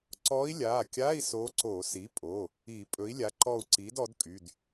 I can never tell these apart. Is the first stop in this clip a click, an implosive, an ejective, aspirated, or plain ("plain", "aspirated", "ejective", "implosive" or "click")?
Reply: click